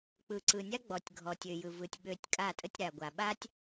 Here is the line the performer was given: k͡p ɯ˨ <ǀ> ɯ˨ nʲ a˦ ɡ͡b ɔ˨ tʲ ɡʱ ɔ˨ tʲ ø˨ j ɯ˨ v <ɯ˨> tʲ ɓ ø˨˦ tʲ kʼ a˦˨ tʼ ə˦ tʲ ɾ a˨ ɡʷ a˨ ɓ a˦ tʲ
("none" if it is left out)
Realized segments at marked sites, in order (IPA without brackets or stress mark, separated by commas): ǀ, ɯ˨